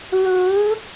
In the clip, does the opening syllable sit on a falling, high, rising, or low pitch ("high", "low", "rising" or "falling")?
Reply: rising